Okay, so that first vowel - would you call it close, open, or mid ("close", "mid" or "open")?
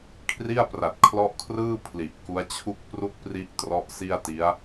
close